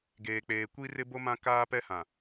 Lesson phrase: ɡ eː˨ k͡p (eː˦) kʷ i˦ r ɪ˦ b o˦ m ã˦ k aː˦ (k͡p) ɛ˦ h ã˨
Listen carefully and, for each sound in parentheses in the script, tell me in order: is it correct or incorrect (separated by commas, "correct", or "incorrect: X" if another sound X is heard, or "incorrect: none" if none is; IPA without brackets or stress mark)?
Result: incorrect: eː˨, incorrect: p